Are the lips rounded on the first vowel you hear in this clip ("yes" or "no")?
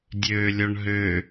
yes